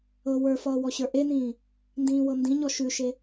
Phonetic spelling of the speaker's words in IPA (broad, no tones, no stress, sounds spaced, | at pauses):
ɤ w ə˞ f ʌː w ɔ ɕ ə˞ ʔ e n ĩː | n d ĩː w ɤ n d ĩ ɲ ɔ ʃ ʉ ʃ e